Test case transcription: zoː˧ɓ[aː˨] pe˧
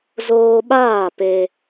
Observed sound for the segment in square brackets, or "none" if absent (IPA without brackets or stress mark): aː˦˨